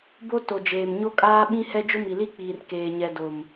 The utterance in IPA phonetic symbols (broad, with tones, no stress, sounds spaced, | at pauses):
b o˦ t o˨ d͡ʒ eː˨ m ɲ o˦ kʼ aː˦ ɓ ĩ˦ h ɛ˦ d͡ʒ ʊ˦ m i˨ l i˦ k͡p iː˨ r k eː˨ ɲ ɛ˨ d o˨ m